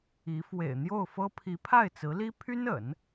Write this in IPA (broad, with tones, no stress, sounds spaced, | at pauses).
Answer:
i˧˥ f w ḛ˨˩ ɪ̯ n̪ j o˥˩ ʊ̯ f ɤ˥ pʰ i˧˥ pʰ a˥˩ ɪ̯ t͡s ɹ̩˧˥ l i˥ pʰ y˥ n ə̰˨˩˦ n